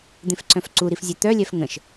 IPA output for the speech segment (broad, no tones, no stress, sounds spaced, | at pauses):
d̪ ẽ f ǀ œ̃ f ǀ u ɾ i f zʲ e t̪ œ lʲ ɛ f ŋ ə̃ ʃ